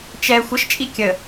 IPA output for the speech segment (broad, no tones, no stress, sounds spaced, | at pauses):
t͡ʃ ɛ xʷ ə ʃ t͡ʃʼ i kʲ ə